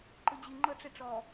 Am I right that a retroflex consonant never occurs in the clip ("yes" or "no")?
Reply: no